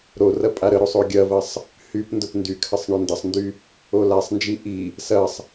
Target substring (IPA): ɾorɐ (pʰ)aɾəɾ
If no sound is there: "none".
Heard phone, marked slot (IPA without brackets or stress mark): pʼ